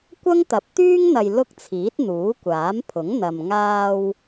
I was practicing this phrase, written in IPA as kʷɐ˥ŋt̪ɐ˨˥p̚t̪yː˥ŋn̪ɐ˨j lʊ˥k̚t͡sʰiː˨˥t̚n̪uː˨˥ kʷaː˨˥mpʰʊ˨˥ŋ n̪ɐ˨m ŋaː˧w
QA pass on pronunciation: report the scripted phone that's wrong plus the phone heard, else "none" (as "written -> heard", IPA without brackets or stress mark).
none